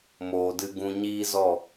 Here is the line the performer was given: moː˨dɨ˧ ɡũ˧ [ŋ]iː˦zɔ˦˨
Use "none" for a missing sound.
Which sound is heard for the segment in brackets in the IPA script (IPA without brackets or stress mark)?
ɲ